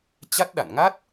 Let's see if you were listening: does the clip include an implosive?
yes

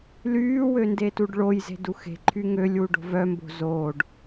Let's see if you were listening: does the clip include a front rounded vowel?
yes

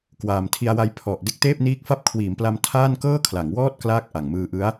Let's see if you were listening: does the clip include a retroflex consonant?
no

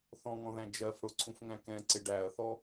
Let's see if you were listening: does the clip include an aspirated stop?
yes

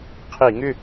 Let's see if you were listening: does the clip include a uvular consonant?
yes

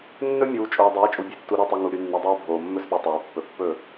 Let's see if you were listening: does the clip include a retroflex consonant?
no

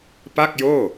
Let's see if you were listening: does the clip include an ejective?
no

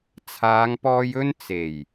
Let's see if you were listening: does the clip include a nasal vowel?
no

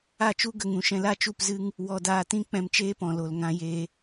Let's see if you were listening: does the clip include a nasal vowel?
yes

